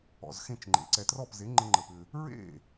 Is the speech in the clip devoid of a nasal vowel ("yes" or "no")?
no